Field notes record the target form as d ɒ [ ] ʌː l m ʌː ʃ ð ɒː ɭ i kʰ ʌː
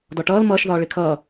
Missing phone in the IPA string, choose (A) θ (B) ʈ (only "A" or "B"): B